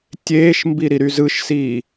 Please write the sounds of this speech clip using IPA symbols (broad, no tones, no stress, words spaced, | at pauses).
tʲeːʃmbi ɾiɾyzɯʃsiː